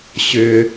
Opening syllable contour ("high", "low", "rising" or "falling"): low